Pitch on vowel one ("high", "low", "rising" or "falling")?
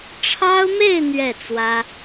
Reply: high